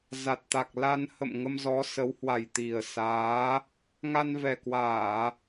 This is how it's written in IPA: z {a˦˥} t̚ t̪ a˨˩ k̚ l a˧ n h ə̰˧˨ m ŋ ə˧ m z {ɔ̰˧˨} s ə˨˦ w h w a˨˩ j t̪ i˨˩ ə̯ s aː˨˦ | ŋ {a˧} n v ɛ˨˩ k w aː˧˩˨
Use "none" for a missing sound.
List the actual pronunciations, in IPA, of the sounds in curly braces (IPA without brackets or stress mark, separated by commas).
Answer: a˨˩, ɔ˨˦, a˧